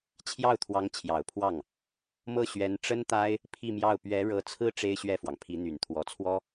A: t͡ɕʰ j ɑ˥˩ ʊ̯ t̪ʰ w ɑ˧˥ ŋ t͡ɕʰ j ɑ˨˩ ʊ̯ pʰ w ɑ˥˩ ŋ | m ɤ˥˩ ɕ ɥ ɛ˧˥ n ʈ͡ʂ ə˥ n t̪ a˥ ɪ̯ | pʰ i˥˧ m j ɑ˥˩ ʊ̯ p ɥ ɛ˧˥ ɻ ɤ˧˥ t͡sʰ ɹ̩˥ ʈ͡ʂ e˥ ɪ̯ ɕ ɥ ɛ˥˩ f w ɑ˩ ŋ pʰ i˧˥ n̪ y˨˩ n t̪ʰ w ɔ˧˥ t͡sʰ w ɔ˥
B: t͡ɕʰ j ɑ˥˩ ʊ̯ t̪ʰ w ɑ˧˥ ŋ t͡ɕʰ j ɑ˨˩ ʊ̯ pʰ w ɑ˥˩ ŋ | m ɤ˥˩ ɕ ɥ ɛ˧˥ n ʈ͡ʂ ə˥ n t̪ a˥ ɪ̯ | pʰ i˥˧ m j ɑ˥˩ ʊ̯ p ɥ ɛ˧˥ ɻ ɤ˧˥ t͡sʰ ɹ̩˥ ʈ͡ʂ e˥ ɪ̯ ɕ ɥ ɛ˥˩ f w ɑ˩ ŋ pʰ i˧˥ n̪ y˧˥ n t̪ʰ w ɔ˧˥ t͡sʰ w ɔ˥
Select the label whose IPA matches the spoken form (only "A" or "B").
A